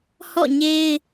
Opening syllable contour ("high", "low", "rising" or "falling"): falling